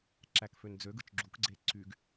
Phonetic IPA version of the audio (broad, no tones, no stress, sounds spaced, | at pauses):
ǁ æ k f ø n d͡z ø ɡ ɯ t͡ʃ ɡ͡ǁ u k ɡ͡ǀ e ǀ y ɡ